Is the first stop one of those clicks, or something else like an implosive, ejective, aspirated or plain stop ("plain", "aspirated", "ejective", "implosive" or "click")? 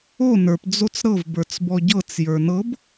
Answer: plain